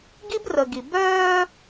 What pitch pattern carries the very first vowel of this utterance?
high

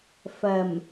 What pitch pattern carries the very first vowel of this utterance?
low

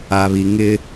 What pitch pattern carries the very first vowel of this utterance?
low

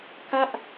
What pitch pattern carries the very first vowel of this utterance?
falling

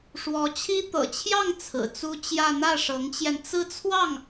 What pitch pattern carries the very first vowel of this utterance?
rising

